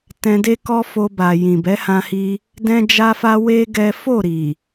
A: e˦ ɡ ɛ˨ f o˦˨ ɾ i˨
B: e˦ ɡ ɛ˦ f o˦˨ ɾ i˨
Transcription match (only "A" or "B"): B